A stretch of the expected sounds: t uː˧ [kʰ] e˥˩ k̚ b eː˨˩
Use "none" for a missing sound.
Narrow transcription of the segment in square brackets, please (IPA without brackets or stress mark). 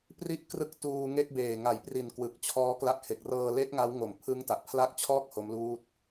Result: ŋ